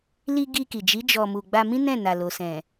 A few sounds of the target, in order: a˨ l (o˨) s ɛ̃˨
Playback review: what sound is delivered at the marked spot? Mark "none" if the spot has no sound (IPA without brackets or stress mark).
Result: o˨